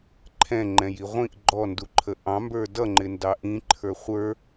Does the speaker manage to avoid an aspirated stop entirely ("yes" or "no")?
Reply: no